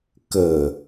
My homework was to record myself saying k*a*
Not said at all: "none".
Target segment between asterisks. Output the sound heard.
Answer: ə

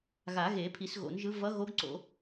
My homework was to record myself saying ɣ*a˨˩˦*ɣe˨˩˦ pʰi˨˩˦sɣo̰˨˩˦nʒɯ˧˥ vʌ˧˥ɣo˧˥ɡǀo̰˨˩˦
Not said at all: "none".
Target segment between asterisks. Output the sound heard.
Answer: a˨˩˦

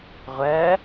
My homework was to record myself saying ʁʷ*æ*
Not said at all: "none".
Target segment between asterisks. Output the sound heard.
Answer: ɜ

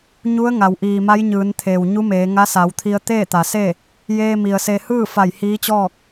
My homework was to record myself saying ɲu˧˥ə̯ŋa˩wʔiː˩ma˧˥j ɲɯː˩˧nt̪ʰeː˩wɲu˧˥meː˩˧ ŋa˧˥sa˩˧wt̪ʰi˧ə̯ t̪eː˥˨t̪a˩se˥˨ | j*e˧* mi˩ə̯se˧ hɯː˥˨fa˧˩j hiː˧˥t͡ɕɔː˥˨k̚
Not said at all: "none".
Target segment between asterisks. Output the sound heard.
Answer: eː˧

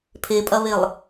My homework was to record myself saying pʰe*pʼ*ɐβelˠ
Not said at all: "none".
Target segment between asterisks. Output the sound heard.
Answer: pʼ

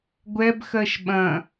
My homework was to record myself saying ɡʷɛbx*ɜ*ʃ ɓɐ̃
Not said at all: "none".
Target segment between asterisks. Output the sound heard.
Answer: ɜ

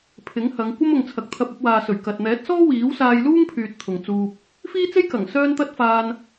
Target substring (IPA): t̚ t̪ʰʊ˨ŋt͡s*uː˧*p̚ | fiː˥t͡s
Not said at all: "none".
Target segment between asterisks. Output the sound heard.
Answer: uː˧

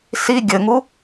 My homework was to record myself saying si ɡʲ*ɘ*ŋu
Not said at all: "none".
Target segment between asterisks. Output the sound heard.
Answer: ɘ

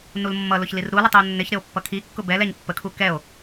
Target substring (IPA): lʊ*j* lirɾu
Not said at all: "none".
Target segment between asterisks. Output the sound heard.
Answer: ç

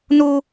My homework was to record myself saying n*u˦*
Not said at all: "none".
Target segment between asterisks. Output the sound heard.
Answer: u˦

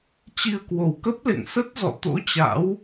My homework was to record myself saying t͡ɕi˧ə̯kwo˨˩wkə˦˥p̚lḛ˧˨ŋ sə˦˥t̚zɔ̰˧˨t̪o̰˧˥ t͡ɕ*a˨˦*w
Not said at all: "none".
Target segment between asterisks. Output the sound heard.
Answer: a̰˧˥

